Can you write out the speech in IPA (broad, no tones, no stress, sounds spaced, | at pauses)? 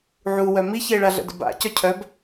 ʕ u w œ m i ç e ɭ a ɮ ə̰ d ə̰ b a̰ c œ cʰ œ b